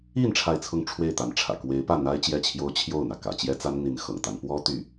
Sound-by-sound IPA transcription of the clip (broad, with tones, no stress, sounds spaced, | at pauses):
i˥˧ n ʈ͡ʂʰ a˥˧ ɪ̯ t͡sʰ ʊ˥˧ ŋ ʈ͡ʂʰ w e˥˩ ɪ̯ t̪ a˧˥ n ʈ͡ʂʰ ä̰˨˩ k w e˧˥ ɪ̯ p ä˥˩ n̪ a˥ ɪ̯ t͡ɕ j ɛ˥˩ t͡ɕʰ j o˥ ʊ̯ t͡ɕʰ j o˥˩ ʊ̯ n̪ ä˩ k ä̰˨˩ t͡ɕ j ɛ˥ t͡s a˥ n n̪ i˧˥ n x ɤ̰˨˩ ŋ t̪ a˧˥ n p w ɔ˥ t̪ y˥˩